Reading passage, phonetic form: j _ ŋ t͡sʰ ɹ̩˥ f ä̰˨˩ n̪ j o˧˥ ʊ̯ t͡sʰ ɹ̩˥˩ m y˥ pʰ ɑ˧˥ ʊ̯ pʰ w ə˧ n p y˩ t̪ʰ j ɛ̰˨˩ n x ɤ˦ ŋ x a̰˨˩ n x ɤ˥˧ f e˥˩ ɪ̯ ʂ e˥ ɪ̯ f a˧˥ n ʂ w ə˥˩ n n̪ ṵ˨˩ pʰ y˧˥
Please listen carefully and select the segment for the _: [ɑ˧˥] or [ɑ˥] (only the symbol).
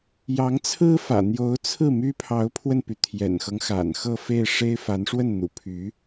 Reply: ɑ˧˥